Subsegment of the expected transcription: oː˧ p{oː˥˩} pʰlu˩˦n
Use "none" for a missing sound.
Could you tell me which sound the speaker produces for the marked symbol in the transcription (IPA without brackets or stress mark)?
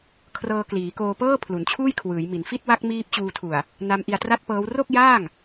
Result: ɤː˥˩